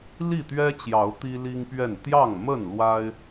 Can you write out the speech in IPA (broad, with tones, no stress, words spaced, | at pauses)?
li˥˨t̪ɥɛ˦t͡ɕjɑ˨˦ʊ̯ t̪i˦li˦ŋpɥɛ˥˨n t̪jɑ˥˨ŋmə˥˨n lwa˦ɪ̯